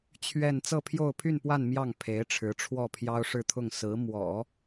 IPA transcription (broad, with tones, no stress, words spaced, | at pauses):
t͡ɕʰɥɛ˥˧n t͡sɤ˥˧pʰjo˥˧ʊ̯pʰy˥˧npwa˥˧n mjɑ˥˩ŋ pʰe˧˥ɪ̯ʈ͡ʂʰɻ̩˧˥ʈ͡ʂʰwɔ˥˩ pʰjɑ˥ʊ̯ʂɻ̩˥˧t̪ʰʊ˥˩ŋ sɹ̩˧˥mwɔ̰˨˩˦